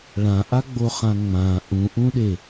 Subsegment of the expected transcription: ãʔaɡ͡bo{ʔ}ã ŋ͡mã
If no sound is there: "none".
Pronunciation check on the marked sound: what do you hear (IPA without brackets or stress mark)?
χ